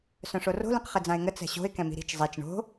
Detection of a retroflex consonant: present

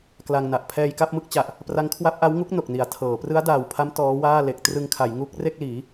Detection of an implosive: absent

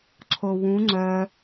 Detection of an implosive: absent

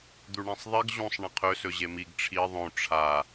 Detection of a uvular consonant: present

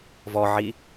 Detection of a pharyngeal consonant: present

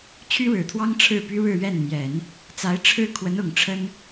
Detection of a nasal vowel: absent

